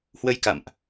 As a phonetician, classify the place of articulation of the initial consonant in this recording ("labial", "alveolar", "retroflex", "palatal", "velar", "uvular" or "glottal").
glottal